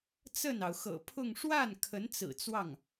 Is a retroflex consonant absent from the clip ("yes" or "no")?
no